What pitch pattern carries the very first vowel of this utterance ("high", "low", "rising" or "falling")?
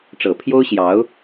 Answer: low